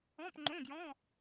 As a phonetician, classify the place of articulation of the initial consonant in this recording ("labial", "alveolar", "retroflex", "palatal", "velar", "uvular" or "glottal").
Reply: labial